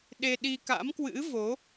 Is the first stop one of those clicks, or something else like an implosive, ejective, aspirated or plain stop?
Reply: implosive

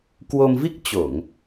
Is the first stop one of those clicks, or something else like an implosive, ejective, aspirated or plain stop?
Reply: plain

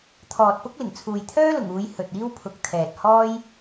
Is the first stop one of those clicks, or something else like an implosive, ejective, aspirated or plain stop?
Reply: aspirated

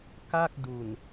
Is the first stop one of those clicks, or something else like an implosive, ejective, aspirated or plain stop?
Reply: plain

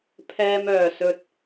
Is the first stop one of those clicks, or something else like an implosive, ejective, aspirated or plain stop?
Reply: aspirated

